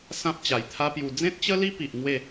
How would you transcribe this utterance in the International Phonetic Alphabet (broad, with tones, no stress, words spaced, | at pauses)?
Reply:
sã˦p̚t͡ɕa˨˩jt̪ʰa˦pju˧ d͡zẽ˦t̚t͡ɕə˦li˦ pi˨ʔ ŋwe˥˧